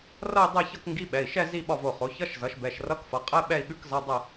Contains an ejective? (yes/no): yes